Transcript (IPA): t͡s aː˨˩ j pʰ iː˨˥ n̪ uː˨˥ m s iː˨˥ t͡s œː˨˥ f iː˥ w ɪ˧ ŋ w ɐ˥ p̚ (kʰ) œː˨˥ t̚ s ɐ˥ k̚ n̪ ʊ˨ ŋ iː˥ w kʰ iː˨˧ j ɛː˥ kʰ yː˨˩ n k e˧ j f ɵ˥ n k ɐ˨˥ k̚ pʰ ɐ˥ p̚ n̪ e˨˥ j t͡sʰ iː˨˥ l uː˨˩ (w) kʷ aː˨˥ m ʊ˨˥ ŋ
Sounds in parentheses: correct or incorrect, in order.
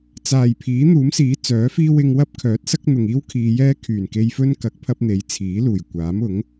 correct, incorrect: j

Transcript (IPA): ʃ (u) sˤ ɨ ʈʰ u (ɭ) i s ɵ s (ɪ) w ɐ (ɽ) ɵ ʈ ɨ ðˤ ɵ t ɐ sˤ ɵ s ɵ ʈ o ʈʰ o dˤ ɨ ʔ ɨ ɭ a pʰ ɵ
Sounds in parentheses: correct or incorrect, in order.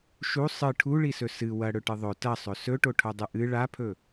correct, correct, incorrect: ɨ, correct

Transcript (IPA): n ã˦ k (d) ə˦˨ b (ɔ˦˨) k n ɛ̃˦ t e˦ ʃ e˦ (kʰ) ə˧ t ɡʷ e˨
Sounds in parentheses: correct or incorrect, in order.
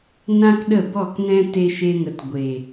incorrect: ɗ, correct, incorrect: ŋ

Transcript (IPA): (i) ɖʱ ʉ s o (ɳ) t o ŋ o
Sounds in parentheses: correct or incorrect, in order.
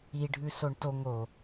correct, correct

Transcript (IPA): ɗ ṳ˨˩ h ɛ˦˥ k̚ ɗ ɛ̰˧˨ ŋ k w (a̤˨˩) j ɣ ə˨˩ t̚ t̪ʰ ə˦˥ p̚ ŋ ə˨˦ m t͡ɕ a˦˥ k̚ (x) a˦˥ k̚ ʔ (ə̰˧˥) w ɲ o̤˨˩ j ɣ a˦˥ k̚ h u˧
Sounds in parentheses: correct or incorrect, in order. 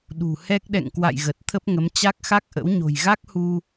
incorrect: a̰˧˨, correct, correct

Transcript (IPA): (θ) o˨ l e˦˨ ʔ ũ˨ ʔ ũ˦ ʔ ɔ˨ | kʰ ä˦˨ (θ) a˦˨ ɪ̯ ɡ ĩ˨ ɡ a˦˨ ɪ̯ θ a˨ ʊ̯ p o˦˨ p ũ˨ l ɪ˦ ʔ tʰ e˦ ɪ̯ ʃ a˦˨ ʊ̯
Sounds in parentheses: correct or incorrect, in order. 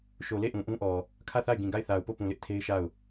incorrect: ʃ, correct

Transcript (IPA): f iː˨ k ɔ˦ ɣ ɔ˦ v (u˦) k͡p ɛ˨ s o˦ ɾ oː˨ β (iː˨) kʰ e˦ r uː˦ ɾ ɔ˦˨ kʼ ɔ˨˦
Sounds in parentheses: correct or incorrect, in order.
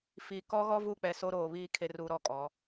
incorrect: u˦˨, incorrect: iː˦

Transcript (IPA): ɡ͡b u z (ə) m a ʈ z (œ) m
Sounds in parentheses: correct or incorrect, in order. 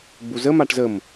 correct, incorrect: ə

